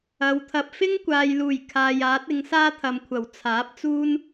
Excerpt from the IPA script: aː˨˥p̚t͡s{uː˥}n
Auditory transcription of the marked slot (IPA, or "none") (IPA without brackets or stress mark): uː˥